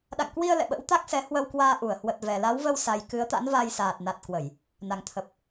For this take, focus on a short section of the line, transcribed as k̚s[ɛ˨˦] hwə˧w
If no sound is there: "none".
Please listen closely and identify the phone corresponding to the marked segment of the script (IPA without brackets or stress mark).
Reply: ɛ˨˦